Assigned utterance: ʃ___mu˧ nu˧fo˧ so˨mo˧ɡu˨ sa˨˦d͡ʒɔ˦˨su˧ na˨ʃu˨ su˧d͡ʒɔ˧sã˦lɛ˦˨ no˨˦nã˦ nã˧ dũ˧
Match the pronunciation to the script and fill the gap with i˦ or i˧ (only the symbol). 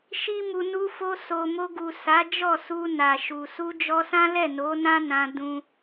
i˦